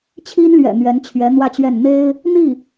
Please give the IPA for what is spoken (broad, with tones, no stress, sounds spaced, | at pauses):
t͡ɕʰ i˥ n l ɥ ɛ̰˨˩ n̪ ɥ ɛ˧˥ n t͡ɕʰ ɥ ɛ˧˥ n̪ w ä˥˧ t͡ɕ ɥ ɛ˥˩ n n̪ e˥ ɪ̯ | n̪ i˥˩